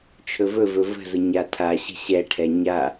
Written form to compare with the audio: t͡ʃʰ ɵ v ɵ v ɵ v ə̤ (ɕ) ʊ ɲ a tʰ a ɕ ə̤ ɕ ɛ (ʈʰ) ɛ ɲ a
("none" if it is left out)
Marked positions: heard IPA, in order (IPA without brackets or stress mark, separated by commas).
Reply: z, ʈʰ